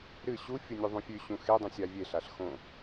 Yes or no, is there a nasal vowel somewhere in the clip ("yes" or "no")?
yes